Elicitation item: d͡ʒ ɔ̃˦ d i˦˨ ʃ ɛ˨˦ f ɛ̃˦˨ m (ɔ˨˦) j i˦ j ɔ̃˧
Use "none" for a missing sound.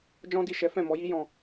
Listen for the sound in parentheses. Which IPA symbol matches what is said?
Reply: ɔ˨˦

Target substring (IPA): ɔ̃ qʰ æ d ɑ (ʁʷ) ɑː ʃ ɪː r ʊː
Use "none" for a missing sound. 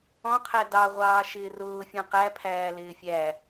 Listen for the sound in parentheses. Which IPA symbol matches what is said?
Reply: ʁʷ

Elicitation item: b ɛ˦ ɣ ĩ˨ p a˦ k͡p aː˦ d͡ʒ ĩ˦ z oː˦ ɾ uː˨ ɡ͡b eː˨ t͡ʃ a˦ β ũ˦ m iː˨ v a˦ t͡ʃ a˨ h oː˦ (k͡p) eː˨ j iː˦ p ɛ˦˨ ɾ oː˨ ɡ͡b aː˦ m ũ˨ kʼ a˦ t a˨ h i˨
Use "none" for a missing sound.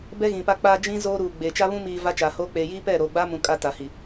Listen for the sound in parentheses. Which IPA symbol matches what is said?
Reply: k͡p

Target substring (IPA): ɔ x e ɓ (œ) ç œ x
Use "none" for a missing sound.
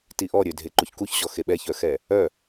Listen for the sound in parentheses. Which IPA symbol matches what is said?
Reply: ɛ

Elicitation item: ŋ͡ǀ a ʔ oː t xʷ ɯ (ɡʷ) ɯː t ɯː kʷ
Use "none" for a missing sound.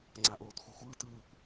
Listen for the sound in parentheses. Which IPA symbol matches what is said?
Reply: xʷ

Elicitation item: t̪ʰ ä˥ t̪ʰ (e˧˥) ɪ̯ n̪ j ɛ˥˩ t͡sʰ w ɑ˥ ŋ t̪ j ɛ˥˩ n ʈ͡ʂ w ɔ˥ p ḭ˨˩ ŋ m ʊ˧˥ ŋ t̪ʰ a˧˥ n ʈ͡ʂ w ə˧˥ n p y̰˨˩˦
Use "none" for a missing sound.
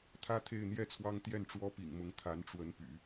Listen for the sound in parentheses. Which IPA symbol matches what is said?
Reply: e˥˧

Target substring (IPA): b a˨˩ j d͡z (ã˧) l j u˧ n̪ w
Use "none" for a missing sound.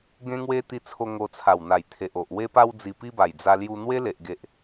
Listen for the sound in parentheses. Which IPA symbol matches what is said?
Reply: a˧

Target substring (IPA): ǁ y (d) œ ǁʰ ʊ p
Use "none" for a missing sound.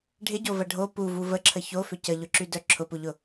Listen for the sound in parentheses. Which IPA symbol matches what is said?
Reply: d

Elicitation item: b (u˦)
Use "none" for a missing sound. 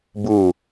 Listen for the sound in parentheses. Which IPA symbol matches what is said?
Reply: u˦˨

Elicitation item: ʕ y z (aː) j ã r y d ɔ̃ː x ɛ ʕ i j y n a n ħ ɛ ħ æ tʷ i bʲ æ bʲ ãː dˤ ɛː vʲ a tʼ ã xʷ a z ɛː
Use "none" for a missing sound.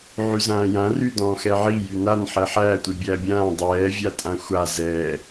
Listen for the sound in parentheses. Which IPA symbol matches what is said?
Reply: ãː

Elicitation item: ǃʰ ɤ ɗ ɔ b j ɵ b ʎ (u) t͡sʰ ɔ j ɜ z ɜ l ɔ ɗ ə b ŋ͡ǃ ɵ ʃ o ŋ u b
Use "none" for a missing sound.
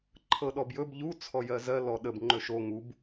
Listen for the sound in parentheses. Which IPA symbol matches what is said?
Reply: u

